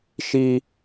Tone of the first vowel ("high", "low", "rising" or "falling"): high